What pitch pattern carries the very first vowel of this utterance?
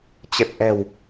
low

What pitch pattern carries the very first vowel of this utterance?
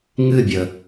falling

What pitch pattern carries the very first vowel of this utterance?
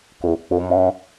low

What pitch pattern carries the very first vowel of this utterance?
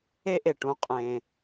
high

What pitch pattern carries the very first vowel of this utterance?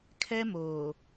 high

